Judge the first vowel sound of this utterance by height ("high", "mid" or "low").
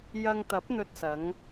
low